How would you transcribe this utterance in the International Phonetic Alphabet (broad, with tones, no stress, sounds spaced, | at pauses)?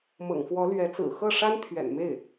m ɤ̰˨˩ ŋ f w ɔ˧˥ l ɥ ɛ˧˥ t͡s ɹ̩˨˩ x ɤ˥˩ ʂ a˥ n t̪ʰ ɥ ɛ̰˨˩ n m e˥˩ ɪ̯